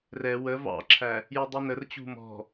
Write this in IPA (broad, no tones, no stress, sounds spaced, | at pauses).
r ɛ w ə v ɑ̰ ǁʰ æ | j ʊ dˤ i n ə r t͡ɕ ṳ m ɔ̤